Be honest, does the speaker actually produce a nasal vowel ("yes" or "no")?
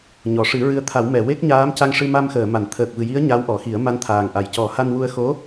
no